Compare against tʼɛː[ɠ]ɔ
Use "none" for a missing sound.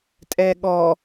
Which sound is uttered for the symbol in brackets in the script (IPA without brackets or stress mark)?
ɠ